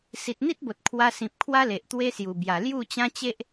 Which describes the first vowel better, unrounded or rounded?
unrounded